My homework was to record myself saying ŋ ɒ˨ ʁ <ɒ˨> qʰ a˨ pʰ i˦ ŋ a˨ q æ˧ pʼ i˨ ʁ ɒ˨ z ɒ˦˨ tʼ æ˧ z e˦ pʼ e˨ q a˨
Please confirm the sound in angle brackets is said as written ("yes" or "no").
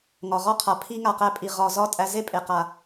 no